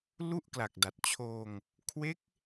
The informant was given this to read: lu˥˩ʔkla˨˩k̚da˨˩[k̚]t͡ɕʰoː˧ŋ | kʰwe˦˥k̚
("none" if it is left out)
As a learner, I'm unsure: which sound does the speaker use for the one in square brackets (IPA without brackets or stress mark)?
t̚